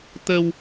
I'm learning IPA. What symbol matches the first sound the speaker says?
t̪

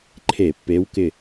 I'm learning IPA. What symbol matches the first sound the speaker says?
ǃʰ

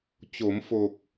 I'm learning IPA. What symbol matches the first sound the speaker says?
t͡ɕ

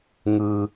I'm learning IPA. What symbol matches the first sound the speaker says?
ŋ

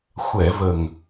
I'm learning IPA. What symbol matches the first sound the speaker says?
xʷ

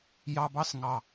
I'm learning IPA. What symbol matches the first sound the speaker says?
j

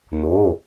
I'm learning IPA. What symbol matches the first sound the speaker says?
n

